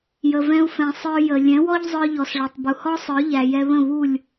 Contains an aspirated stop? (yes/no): no